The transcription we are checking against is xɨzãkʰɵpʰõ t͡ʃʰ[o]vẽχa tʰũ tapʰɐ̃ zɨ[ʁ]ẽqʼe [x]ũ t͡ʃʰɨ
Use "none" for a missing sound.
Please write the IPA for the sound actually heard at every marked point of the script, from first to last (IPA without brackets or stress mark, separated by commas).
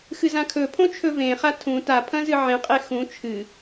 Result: ɵ, ʕ, x